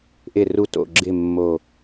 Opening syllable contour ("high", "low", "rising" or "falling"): low